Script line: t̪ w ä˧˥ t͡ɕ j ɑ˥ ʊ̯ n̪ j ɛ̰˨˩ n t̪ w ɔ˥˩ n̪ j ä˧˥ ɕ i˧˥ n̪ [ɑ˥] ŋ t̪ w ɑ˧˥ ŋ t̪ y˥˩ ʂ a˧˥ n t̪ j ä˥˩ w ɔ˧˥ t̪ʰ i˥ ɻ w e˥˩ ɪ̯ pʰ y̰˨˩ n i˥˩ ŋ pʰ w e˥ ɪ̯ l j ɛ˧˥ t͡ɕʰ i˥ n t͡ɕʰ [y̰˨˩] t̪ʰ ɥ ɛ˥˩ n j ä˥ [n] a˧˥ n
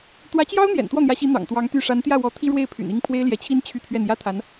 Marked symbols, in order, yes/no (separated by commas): no, no, no